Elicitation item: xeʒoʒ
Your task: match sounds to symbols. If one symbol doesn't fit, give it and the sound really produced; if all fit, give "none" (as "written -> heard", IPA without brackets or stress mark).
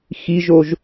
e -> i